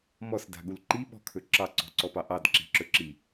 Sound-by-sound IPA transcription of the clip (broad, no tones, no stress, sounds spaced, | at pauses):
m ɔ s d a̤ ɠ u l ǃ i ɓ ɔ̤ kʰ ɵ ǁ ɑ ǀ ɔ̤ ǀ ɔ p ɑ ʔ ɑ d ǁ i̤ ǁ ɵ ǁ i